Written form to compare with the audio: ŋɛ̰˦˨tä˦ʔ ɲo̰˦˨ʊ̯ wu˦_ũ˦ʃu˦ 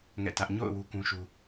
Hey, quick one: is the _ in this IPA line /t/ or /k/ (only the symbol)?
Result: k